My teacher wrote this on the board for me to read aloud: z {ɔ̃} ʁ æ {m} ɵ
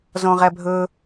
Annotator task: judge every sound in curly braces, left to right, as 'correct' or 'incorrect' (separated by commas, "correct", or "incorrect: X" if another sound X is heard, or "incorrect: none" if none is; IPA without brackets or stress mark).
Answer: correct, incorrect: bʱ